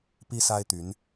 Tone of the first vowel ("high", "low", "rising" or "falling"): high